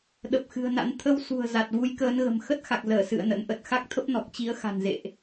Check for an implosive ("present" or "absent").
present